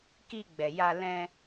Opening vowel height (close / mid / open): close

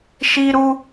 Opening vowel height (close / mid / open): close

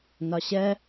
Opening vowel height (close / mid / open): open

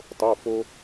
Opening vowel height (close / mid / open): mid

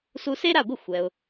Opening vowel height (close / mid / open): close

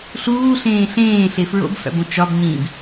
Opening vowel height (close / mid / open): close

